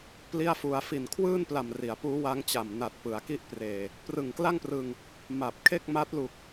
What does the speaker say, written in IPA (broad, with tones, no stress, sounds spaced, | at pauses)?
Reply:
p l i˥˩ a̯ f u˧ a̯ f i˨˩ n kʰ w ɯː˥˩ n p l a˨˩ m r i˩˦ a̯ p uː˦˥ w a˦˥ ŋ t͡ɕ a˨˩ m n a˨˩ t̚ p ɯ˩˦ a̯ k i˥˩ ʔ p r eː˨˩ | p r ɯ˨˩ ŋ k l a˥˩ ŋ p r ɯ˧ ŋ | m a˨˩ p̚ kʰ e˥˩ k̚ m a˦˥ t̚ l u˨˩ k̚